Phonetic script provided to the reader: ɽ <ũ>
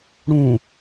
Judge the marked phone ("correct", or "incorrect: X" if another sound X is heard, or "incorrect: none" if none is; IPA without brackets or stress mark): correct